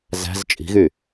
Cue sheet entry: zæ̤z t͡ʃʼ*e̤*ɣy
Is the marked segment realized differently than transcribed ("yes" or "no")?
yes